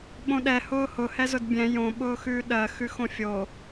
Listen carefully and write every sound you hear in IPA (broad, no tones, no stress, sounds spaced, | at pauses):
ɓ õ ɗ ɛ h ʊː h ʊ h ɛ z ʊ d bʲ ɛ̃ j õ ɓ ʊː x ʉː ɗ ɜ x ʉ x õ fʲ o